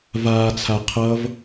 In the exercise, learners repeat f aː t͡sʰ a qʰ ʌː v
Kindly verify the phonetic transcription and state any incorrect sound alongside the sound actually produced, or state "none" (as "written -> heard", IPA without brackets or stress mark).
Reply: f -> v